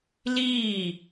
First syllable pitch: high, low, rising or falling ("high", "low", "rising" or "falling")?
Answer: falling